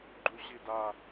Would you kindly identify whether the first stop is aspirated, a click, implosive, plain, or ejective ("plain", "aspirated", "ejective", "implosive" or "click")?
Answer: click